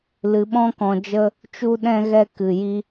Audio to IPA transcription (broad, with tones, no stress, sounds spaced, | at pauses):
l ɨ˧ ɓ ɔ̃˦ k ɔ̃˧ d͡ʒ ə˦ | t͡ʃ u˦ ɗ ɛ̃˦ ɣ ɛ˦ k ɨ˧ j i˦